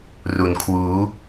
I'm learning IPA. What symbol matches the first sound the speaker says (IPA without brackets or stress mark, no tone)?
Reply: r